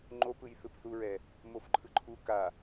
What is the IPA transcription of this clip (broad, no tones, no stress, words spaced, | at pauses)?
ŋ͡ǃopɯj θɯpθuɹɛ | mofǃʰɯǃʰu ka